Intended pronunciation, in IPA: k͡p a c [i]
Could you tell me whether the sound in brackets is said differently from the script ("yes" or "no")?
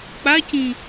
yes